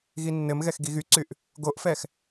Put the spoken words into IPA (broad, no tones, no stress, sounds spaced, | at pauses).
ɣ i nː ɘ m ɣ ɛ x ɡ i ɣ y ǀ y ʔ | ɡ o ʔ f ɛ x